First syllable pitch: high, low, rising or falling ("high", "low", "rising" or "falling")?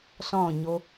falling